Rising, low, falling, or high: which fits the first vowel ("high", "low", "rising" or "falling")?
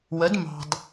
rising